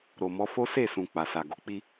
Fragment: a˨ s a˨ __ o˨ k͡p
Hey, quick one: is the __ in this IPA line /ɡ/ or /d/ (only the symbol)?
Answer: ɡ